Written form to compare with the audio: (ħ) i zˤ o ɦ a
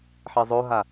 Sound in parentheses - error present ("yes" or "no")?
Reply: no